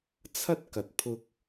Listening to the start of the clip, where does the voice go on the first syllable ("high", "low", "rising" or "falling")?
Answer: high